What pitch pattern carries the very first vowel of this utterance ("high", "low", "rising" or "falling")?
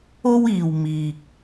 high